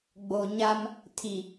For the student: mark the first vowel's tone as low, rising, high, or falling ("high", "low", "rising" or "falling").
low